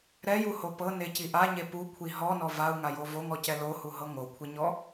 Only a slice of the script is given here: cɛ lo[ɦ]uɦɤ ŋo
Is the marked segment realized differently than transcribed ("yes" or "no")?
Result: yes